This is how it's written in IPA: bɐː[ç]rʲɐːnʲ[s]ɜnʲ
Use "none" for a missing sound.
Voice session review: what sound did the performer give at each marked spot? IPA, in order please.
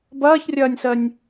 ç, s

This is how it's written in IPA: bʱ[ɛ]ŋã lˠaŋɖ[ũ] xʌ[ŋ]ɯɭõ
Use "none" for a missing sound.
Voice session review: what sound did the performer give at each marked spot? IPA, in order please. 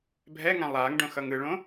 ɛ, õ, ŋ

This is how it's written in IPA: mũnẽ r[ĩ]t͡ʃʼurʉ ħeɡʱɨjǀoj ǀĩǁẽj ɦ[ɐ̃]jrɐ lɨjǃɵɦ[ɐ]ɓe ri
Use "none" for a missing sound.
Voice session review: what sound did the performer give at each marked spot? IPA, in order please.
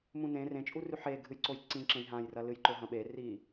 ẽ, ã, ɐ̃

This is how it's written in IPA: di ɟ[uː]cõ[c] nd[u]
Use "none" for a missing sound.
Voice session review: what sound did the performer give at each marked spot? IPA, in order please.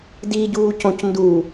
uː, c, u

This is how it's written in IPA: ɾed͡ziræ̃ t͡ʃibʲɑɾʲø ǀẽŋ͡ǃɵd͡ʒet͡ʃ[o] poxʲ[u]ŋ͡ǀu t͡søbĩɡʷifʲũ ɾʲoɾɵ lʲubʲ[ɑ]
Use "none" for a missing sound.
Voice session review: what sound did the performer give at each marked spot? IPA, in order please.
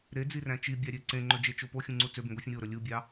o, ũ, ɑ

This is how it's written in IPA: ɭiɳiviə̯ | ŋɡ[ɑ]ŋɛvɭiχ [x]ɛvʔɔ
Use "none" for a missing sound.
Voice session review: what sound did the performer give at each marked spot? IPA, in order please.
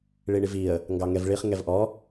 ɑ, ŋ

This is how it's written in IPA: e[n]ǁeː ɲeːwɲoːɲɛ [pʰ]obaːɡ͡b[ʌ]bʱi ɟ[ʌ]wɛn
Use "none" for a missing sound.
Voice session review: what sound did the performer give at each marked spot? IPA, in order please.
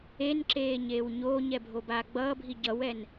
n, bʱ, ʌː, ʌ

